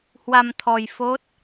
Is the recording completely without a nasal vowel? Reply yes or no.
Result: yes